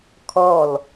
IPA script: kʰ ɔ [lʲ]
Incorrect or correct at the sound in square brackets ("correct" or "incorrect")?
incorrect